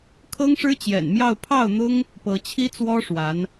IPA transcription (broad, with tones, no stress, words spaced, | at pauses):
kʰɤ˥ŋʂɻ̩˥t͡ɕjɛ̰˨˩nmjɑ˥˧ʊ̯ pʰɑ˥˩ʊ̯n̪ʊ˥ŋ | pɤ˧˥t͡ɕʰi˥t͡swɔ˥ʂwa˧˥n